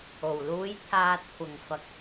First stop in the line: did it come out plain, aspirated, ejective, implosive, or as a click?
aspirated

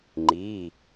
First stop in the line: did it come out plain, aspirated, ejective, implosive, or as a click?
click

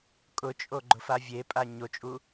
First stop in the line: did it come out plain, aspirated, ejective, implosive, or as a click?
ejective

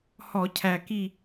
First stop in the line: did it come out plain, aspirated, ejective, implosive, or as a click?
aspirated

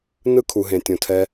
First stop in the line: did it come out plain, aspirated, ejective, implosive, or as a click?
aspirated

